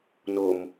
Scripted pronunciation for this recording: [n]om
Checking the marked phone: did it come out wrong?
no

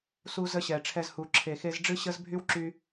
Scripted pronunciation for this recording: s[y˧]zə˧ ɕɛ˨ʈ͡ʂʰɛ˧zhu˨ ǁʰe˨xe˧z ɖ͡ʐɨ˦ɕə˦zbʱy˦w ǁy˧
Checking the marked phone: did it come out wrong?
yes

